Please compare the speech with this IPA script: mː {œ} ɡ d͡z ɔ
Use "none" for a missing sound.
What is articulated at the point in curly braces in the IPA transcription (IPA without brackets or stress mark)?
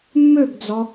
ø